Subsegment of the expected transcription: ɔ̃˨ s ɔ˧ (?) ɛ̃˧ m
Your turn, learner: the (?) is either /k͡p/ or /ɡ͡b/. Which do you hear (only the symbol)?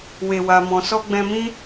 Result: ɡ͡b